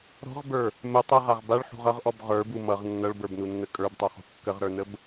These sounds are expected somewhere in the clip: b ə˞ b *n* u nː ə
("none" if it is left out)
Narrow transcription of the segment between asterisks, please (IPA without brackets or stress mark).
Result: n